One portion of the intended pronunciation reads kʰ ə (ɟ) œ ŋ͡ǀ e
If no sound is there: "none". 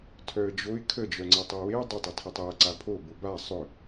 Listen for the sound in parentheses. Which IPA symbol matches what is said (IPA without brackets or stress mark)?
d͡ʒ